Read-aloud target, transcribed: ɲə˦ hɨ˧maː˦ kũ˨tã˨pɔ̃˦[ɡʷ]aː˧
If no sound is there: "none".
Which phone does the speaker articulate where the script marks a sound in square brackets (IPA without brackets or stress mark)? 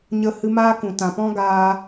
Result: ɡ